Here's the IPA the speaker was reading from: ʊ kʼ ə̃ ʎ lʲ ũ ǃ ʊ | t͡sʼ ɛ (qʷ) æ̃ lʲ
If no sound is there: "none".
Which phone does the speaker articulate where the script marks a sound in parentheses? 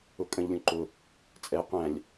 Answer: qʷ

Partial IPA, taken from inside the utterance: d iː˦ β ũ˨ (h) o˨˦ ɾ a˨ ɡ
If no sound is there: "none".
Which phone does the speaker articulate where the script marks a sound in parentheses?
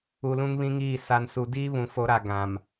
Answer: f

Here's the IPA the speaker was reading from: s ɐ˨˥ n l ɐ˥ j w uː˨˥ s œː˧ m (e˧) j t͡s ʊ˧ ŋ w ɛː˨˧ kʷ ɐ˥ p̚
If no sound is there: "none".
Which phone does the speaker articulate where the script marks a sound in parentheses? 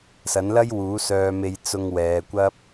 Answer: e˧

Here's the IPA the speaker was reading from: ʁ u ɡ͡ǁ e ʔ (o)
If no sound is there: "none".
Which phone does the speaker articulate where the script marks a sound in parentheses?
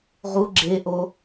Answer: o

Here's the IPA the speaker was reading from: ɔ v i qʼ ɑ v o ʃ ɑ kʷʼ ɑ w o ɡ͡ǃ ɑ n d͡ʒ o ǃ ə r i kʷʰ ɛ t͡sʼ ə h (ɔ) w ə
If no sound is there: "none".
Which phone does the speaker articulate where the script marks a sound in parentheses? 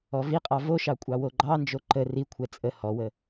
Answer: ɔ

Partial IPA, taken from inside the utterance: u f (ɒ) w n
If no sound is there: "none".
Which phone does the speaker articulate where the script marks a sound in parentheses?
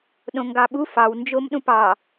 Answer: ɑ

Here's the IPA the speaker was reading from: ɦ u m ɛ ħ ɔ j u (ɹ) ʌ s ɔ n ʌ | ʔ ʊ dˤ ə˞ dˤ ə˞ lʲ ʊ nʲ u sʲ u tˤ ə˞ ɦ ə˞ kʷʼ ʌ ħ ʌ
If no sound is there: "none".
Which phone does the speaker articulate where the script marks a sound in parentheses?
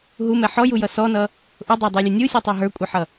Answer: j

